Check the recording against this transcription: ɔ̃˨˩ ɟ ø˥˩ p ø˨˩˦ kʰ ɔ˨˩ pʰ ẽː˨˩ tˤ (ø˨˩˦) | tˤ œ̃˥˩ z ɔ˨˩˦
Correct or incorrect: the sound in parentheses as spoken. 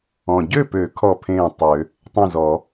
correct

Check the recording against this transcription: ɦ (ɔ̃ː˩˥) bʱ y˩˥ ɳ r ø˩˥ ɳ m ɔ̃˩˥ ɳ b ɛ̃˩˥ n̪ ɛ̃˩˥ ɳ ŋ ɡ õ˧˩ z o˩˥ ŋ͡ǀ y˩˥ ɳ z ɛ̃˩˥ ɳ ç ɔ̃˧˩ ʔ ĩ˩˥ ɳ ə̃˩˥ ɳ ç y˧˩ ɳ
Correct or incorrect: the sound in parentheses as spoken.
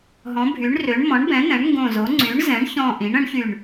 incorrect: ɔ̃˩˥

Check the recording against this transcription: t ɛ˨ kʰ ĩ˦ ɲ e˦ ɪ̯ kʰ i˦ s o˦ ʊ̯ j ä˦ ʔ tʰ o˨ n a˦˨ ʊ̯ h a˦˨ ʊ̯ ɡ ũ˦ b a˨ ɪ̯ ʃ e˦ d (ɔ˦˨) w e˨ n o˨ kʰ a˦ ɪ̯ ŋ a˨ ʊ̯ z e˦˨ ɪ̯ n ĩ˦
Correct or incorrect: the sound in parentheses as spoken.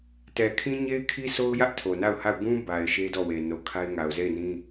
correct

